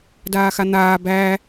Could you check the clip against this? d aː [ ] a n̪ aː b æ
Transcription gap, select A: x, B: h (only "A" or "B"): A